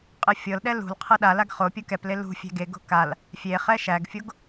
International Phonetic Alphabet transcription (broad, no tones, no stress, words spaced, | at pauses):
qʼɨfʲɤlɗɛ lṳl qʰɤɗalaɡ χopʲu kɛple lṳ fʲæ̤ɡeɡo̤ kal | fʲe χɛʃæɡfʲoɡ